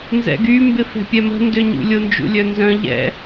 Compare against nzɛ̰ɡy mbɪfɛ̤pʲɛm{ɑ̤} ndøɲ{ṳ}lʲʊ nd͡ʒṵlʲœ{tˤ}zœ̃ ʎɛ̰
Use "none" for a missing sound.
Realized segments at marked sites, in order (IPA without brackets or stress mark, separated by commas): ə̤, ṵ, n